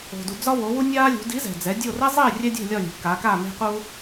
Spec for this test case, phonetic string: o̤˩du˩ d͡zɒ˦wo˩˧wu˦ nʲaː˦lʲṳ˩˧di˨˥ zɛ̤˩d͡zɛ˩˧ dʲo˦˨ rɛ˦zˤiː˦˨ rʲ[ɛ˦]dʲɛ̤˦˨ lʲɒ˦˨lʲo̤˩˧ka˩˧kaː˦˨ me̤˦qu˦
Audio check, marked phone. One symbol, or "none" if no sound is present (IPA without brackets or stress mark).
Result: ɛ˦